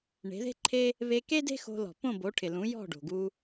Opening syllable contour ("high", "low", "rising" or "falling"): rising